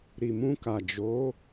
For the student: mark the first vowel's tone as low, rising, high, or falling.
low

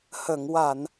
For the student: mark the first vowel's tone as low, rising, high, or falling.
low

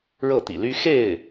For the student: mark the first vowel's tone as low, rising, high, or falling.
falling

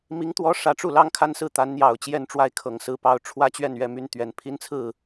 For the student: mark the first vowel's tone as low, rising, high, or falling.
rising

